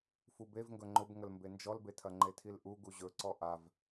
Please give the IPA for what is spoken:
fubevŋɡɵ ŋ͡ǃʊbŋəlmbe nd͡ʒɔlbetʰɐ ŋ͡ǃetʰilʔu ɡuʑɵǀɔ ʔav

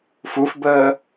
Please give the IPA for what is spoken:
fufbəː

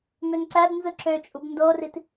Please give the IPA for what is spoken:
mønǀæb nzɯǁøt͡ʃʼub ndorit

